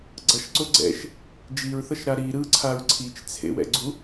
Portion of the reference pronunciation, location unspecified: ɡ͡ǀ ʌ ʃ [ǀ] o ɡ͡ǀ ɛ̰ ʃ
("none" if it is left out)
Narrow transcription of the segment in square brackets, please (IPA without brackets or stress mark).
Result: ǀ